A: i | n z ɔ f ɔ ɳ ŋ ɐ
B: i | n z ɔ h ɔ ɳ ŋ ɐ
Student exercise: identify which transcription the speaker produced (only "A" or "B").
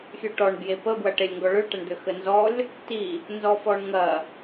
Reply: A